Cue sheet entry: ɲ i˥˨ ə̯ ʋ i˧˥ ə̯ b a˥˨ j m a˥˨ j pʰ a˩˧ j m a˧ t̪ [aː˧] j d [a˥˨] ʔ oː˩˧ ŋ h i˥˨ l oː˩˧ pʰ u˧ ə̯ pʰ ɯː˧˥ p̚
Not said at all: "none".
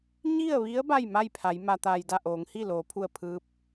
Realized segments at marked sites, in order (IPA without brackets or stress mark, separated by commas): aː˧, a˥˨